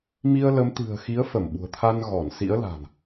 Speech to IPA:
m i˧ ə̯ l ə˨˦ m t̪ ɨ̤˨˩ ə̯ x i˨˦ ə̯ f ə˧˩ m ɓ ṳ˨˩ ə̯ t̪ʰ a˧ n ɣ ɔ˧˩ n s ḭ˧˥ ə̯ l a̤˨˩ n

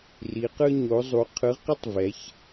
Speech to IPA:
r i˩˧ q ɯ˦ ɲ o˩˧ zˤ u˩˧ qʰ ɯ˩˧ ʁ q ʌ˦ tˤ v ɛ˩˧ ç

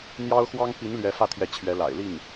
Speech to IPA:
n̪ j ɑ˥ ʊ̯ x w ɑ˥ ŋ p i˧˥ n l ɥ ɛ˧˥ f ä˥˩ t̪ʰ j ɛ˧˥ t͡ɕʰ ɥ ɛ˧˥ l a̰˨˩ ɪ̯ l i˥˩ ŋ

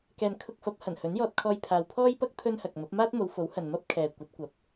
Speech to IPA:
k ɛː˨ n kʰ ʊ˧ k̚ f ɐ˨˥ p̚ h ɐ˨˩ n h ɵ˨˥ n j ɔː˧ t̚ kʰ ɔː˧ j pʰ aː˨ w pʰ ɔː˥ j p ɐ˥ k̚ t̪ʰ ɵ˥ n h ɐ˨ k̚ m ɐ˨˥ p̚ m aː˥ t̚ m o˨˧ w f o˨˥ w h ɐ˨ n m ɐ˥ p̚ kʰ ɛː˨ kʷ ɐ˨˥ t̚ kʷ ɐ˨˥ p̚

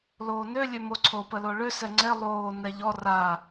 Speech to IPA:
l oː n ø lʲ ø m o ǀʰ o p ə l o ɭ ø s ɛ ŋ͡ǀ e lˠ oː n ɛ ʎ ɔ r a

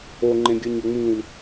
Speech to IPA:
o ŋ͡ǃ ẽ ɡʲ ə˞ ɲ o ŋ͡m ĩ l

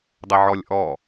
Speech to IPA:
dˤ ɘ ʕ ɔ lʲ ʔ ɔ

